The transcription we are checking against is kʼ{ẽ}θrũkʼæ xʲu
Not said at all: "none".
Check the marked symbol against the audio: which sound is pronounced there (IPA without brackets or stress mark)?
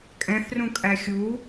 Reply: ɛ̃